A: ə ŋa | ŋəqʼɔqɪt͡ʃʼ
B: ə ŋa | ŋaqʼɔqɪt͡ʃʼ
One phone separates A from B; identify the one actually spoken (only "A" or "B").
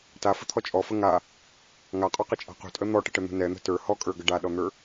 B